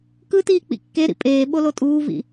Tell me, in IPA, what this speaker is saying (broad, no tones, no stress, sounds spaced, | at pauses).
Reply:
k ɯ t iː k͡p ḭ kː e ɾ ḭ pʼ eː ɓ o l o tʼ uː v ḭ